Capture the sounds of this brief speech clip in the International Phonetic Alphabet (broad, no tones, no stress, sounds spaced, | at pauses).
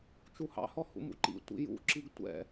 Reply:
t͡ʃ u h ɑ̰ h ɔ h ṵ m ṵ ǃ ḭ tʷ ḭ j ṵ ǁ i ɡ tʷ ɛ̰